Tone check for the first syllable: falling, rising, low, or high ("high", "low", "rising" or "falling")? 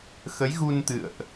rising